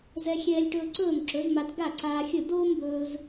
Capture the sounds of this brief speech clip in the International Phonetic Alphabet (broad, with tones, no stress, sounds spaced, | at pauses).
z ɛ˧ xʲ ɛː˧ lʲ ʈ ɵː˧ ǀ ɵː˥˩ m ǁ ɵ˩˥ z m a˧ t ɡ a˥˩ ǀ aː˧ xʲ ɵ˥˩ d oː˥ m b ɵː˧ z